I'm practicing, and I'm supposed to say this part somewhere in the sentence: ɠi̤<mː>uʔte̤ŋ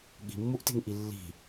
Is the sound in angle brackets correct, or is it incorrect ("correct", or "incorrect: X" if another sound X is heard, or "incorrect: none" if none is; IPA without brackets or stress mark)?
correct